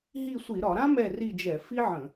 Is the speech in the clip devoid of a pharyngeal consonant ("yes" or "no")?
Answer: no